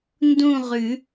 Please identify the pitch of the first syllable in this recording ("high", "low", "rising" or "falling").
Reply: falling